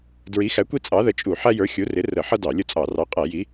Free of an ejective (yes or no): no